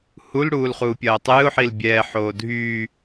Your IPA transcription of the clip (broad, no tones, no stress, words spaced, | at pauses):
hul ɽuːlχuːpʲɐːtˤɨːʊ̯ ħilbʲɛː ħoːdʱyː